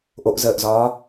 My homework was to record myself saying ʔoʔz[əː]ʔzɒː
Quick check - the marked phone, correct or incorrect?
correct